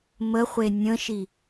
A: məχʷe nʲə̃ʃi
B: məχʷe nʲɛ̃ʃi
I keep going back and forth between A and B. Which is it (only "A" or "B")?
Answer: A